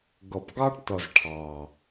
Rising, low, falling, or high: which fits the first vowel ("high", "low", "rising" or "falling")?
low